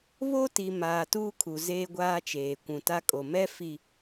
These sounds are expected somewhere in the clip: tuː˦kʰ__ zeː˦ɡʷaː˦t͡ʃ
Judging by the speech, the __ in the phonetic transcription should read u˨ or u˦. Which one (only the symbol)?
u˨